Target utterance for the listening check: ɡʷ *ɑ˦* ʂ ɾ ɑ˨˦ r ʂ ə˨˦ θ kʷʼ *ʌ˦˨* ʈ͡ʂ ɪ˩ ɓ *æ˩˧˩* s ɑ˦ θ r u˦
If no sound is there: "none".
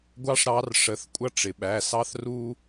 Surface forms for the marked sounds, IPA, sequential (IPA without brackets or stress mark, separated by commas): ɑ˦, ʌ˦, æ˩˧˩